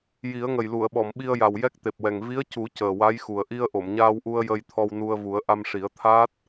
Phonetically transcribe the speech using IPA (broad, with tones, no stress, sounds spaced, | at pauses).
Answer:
j i˨˩˦ ə̯ ŋ ə˨˩ j l u˨˩˨ ə̯ ɓ ɔ˨˩˨ m ɓ i˧ ə̯ j a˨˩ w j ɛ˦˥ k̚ t̪ e˨˩ p̚ w ɛ˨˩ ŋ v i˧˥ ə̯ c u˨˩˦ c əː˨˩ w a˧˥ j x u˨˩ ə̯ ʔ i˧ ə̯ ʔ o˨˩˨ m ɲ aː˧ w ʔ u˧ ə̯ j ə˧ j t̪ʰ ɔ˧ w n u˧ ə̯ v u˨˩˦ ə̯ ʔ a˧ m ʂ i˨˩˦ ə̯ t̪ʰ aː˦˥ t̚